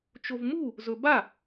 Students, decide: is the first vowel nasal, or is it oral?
oral